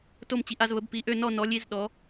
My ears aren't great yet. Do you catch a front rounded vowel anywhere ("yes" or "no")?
yes